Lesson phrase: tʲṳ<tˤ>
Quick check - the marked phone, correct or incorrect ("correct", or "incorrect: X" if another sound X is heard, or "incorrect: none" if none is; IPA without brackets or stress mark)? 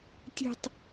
correct